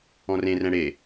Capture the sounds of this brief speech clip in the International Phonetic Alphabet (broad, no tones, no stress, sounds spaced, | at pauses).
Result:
ɔ̃ r ẽ r ɛ̃ ɽ e